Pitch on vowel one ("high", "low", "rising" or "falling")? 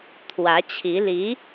rising